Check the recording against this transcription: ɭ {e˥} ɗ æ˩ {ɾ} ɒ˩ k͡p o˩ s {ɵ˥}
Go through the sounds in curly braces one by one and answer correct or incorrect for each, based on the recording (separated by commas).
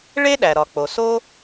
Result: correct, correct, incorrect